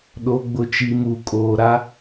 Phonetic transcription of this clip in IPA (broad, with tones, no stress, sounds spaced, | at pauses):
ɗ o˨ ɡ͡b ʊ˨ t͡ʃ i˨ m u˨ kʼ oː˨ ɾ a˦